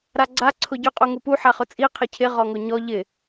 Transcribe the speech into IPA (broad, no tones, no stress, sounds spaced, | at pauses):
ɾ a ɡ͡ǀ a ǀʰ ʊ ɟ ʊ qʼ u ŋ u p u ħ a χ ʊ t͡sʼ i qʰ ɪ cʰ ɪ ʁ ɔ ŋ ʊ ɲ ɔ ʎ ɪ